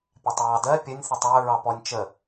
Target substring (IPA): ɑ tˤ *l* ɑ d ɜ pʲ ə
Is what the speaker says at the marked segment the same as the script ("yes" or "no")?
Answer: no